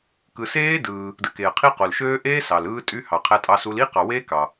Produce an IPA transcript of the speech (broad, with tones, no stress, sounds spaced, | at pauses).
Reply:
k ɯ˨ s eː˦˥ d ɯː˨ | d ɯ˨ k eː˨ ə̯ qʰ i˦˥ q o˨ l ʃ øː˦˥ ʔ eː˦˥ s ɑ˨ l ɯː˦˥ tʼ y˦˥ h ɑ˨ qʰ æ˦˥ tʼ ɑ˦˥ s u˦˥ l i˦˥ q ɑ˨ w e˦˥ k ɑ˨